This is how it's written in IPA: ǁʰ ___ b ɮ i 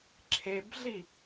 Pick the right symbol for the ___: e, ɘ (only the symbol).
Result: e